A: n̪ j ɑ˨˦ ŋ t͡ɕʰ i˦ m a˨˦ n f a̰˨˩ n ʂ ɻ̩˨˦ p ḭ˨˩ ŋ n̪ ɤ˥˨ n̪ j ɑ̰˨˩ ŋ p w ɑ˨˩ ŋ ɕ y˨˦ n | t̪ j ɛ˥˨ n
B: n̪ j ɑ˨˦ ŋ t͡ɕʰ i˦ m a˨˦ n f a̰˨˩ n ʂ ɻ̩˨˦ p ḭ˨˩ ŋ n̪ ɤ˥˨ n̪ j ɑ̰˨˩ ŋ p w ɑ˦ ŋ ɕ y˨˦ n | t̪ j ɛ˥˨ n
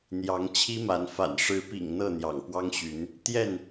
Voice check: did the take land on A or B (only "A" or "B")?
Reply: B